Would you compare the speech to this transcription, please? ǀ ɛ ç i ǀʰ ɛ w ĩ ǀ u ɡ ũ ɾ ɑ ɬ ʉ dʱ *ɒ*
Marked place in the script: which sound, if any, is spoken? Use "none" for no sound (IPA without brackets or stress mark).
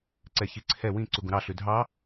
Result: ɑ